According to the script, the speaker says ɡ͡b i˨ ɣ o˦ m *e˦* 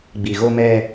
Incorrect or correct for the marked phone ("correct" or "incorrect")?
incorrect